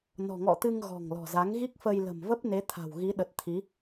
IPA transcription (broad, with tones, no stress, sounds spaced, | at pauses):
n ɔ̤˨˩ ŋ ɔ̰˧˨ t̪ ɨ˧ ŋ ɣ ɔ̤˨˩ ŋ l ɔ̤˨˩ z a˨˦ ŋ ɣ i˦˥ k̚ f ə˧ j l ə̤˨˩ m v ə˦˥ p̚ n e˨˦ t̪ʰ a̤˨˩ w ɣ i˨˦ ɗ ə˨˩ t̚ t̪ʰ i˨˦